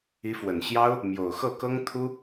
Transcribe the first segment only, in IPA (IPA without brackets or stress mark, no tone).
i